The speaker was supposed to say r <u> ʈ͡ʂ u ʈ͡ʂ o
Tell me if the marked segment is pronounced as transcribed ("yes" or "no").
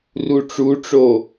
yes